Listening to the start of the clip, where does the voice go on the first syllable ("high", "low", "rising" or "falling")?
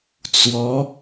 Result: rising